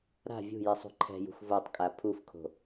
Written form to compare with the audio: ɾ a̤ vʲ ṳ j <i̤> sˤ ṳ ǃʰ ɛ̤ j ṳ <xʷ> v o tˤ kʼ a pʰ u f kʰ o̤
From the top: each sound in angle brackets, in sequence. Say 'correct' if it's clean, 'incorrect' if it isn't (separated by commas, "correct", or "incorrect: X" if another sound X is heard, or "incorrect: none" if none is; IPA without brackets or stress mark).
incorrect: i, correct